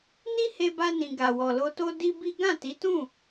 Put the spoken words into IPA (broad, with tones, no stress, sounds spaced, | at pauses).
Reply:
n i˦ h e˧ b a˧ n ĩ˨ ɡ a˨ w ɔ˨ l o˧ t o˦ d i˦ b i˦ ɡ ã˦˨ t i˨˦ t ũ˦˨